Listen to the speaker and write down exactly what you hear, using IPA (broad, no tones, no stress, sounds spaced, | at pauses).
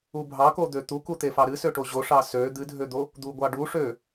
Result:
u bʱ ɑ k o d̪ ø t̪ u k u t̪ e f ɑ ɾ ɨ s ø ʈ o ʑ o ʂ ɑ s ø d̪ ɨ dʱ ø d̪ o | d̪ u ɡʷ ɑ ɖ u ʂ ø